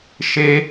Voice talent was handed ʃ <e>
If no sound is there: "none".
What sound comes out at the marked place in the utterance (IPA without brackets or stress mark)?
e